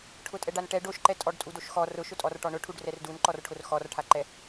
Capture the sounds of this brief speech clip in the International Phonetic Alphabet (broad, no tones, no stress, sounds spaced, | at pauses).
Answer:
ʈʰ ʊ tʼ ɛ ɖ a n ʈ ɛ ɖ o ʃ ǃ ɛ tʼ ɔ ɖ tʼ u d o ʃ x ɔ r ʊ ʃ ʊ tʼ ɔ r ʈ ɔ ɳ ʊ ʈʰ u ɖ r ɛ r d u n ǃ ɔ r ʈʰ ʊ r x ɔ r ʈʰ a ǃ ɛ